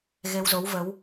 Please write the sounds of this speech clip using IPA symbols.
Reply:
ɣ e˧ w z o˨˦ w v ə˨˦ w

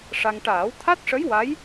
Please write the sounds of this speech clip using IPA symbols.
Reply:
ʂ a˧ ŋ ʈ aː˨˩˦ w t̪ʰ a˦˥ t̚ ʂ ə˧˥ j w a˧˥ j

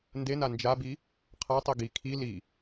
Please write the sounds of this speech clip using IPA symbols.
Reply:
n d e n a n d͡ʒ a b i | qʰ a tˤ i ɡ i kʰ i l i

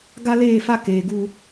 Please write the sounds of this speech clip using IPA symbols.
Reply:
ɡ a˦ l eː˦˨ f a˦ k eː˨ ɡ u˦

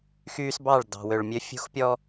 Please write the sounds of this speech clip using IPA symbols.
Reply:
x yː˦ s b ɑ˦˨ ɭ d ɑ̤˨ w ø˨ ɭ mʲ ø˦ fʲ ṳ˦ x pʲ ɔ˦

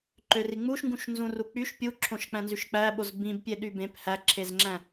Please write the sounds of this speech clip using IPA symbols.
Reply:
ǃ ø r i ŋ͡m u ʃ ŋ ɡ ũ ʃ n z ũ r u k͡p y ʃ pʲ u ǁʰ õ ʃ k͡p æ̃ n z y ʃ k͡p æ ɓ o z b ĩ b pʲ e ɗ y b ẽ p h æ ǁʰ e z ŋ͡ǁ æ̃

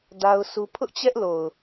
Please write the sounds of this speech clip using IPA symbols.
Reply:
d a˦ ʊ̯ s u˦ pʰ ʊ˦ ʔ t͡ɕ ɛ˦ ʔ l o˨ ʊ̯

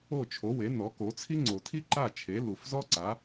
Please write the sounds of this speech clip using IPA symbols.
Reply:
o˥˩ t͡ʃʰ o˩˥ w e˩˥ n ɔ˩˥ k o˩˥ t͡sʰ i˥ ŋ͡ǀ o˨˩ tʰ i˥ ǃ a˥˩ t͡ʃʰ e˩˥ l u˨˩ f z ɔ˥ ǀ a˩˥

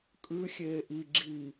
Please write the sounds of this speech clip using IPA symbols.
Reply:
kʼ ʉ xʲ eː ʔ i ɡ͡ǁ i

